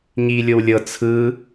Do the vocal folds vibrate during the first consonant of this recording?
yes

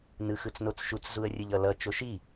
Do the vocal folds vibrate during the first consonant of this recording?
yes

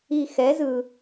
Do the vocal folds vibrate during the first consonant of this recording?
no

